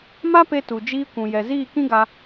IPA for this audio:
m a˦ p e˧ t u˨ d͡ʒ iː˧ kʷ ũ˨ j ɛ˨ z iː˦˨ k ĩ˦ ɡ a˧

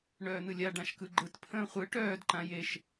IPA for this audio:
ɳ œː n̪ ɯ lʲ a ɖ ã ʃ k ɯ ɡ͡ǃ ɯ t pʰ ə̃ː χʷ ɯ ʈ œː d ǃ ã j e ʃ

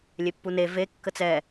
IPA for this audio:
lʲ e pː u n e v e kː ə t͡s ɛ

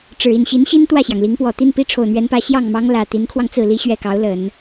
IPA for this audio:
ʈ͡ʂ ɻ̩˨˩ i˥˩ n ɕ i˧˥ n ɕ i˥ n t̪ w ä˥˩ ɕ j ɑ˩ ŋ l i˧˥ ŋ p w ɔ˨˩ t̪ i˥˩ n p i˥ ʈ͡ʂʰ o˨˩ ʊ̯ n̪ ɥ ɛ˧˥ n p ä˧˥ ɕ j ɑ˥˩ ŋ m ɑ˥ ŋ l ä˨˩ t̪ i˧˥ n kʰ w ɑ˧ ŋ t͡s ɹ̩˥˩ l i˥ ɕ ɥ ɛ˥˩ k ɑ˧˥ ʊ̯ l ə˨˩˦ n

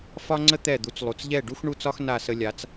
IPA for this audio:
f ɒ˥ ŋ͡ǀ ə˥ t̪ ɛ˥˩ d̪ u˩˥ t͡s lˠ u˩ t͡s ʎ ɛ˥˩ ɖ u˥ x ɳ u˥˩ t͡s ɒ˥ x n a˥˩ s ə˧ lʲ a˩˥ t͡s

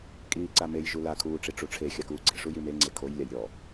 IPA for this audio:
kʼ iː ǀ a m e j ʒ u l a kʰ uː ʈ͡ʂ i ʈ͡ʂ u ʈ͡ʂʰ e xʲ a k uː ɡ͡ǀ e ʂ u j i m e ŋ͡ǀ e kʰ o j lʲ a j ɾʲ ɔ

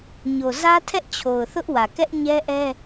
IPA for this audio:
ɲ o˨ z ä˦ tʰ ɛ˦ ʔ t͡ɕʰ o˨ ʊ̯ θ ʊ˦ ʔ w ä˨ k ɛ˦ ʔ ɲ ɛ˦ ʔ ɛ˦

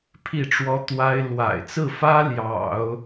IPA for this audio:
pʰ i˥˩ ʈ͡ʂ w ɔ˥ t̪ w a˥ ɪ̯ l w a̰˨˩ ɪ̯ t͡s ɹ̩˥˩ f ä˥ l j ɑ̰˨˩˦ ʊ̯

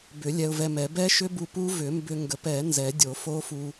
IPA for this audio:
b ʏ˨˩˦ lʲ ɛ˧ ʊ̯ v ɛ˧ m ɛ˨˩˦ b ɛ˦˥ ʃ ʏ˦˥ b u˧ p u˦˥ v ʏ˨˩˦ m b ʏ˧ ŋ ɡ ə˨˩˦ p ɛ˨˩˦ n z ɛ˨˩˦ dʲ o˨˩˦ f o˦˥ f u˧

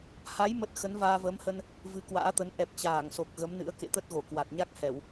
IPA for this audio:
h a˨˦ j m ə˦˥ t̚ x ə˨˦ n v aː˧ v əː˨˦ m h ə˧ n | v ɨ˨˦ k w a̰ː˧˥ t̪ ə˨˦ n ʔ ɛ˨˩ p̚ t͡ɕ aː˧˩ ŋ s o˨˩ k̚ ɣ ə˨˦ m n ɨ̰˧˥ ə̯ k ḛ˧˨ t̪ ə˦˥ t̚ ɣ o˧˩ k w a˨˩ t̚ ɲ a˦˥ k̚ h ɛ˧˩˨ w

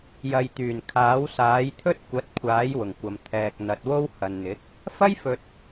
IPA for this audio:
j ɐ˨ j t̪ yː˨˩ n kʰ aː˨˥ w s aː˨˥ j t̪ʰ ɵ˥ t̚ kʷ ɐ˨˥ t̚ kʷʰ aː˨˥ j w ʊ˨˩ ŋ kʷ ɐ˨ m t̪ʰ ɛː˨ k̚ n̪ ɐ˨ t̚ w o˥ w h ɐ˨ n n̪ ɪ˨˥ k̚ | f ɐ˥ j f ɵ˨ t̚

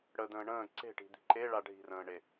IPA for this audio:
ɽ ə d̪ ə̃ː ɳ ə̃ː ǀ e̤ ʈ i̤ d̪ i̤ ǃ e ɭ a ɖʱ i̤ r ə̃ː ɳ e

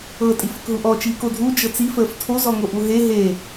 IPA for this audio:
ɤ tʼ i f ə k ɦ u ʔ ɔ t͡ʃ iː k o dʱ u d͡ʒ ɤ t͡s i f əː f tʰ o z ɔ ŋ o ʔ u ɦ e ɦ e

